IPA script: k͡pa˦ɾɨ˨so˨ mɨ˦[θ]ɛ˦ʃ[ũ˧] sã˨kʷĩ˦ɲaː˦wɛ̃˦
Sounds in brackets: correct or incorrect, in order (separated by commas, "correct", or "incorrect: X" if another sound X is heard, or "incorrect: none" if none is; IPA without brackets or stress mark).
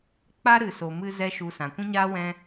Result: incorrect: z, incorrect: u˧